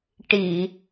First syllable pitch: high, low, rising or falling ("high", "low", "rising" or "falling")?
low